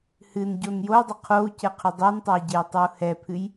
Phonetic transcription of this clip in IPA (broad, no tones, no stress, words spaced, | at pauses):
hɨnɟon jou̯dˤʏ qʰou̯cɛqʰʏ dˤɛntˤœi̯ɟejtˤœu̯ hɛpʰɨj